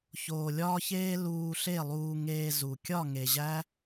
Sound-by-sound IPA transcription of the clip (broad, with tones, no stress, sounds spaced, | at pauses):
ç oː˨ lʲ ɒː˧ ç eː˧ l uː˧ ɬ e˦˨ lˠ uː˧ ŋ eː˧ z u˨ kʲ ɒ˦˨ ŋ e˨ ʑ æ˦